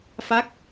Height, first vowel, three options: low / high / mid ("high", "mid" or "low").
low